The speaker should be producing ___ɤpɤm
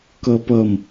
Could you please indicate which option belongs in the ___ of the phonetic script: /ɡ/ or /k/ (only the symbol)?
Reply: k